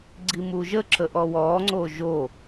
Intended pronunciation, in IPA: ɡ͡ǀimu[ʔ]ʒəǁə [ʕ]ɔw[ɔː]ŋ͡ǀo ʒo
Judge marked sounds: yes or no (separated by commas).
no, no, yes